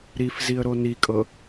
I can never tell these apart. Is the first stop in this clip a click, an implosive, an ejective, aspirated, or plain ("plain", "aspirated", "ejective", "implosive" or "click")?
ejective